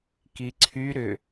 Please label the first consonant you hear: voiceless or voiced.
voiceless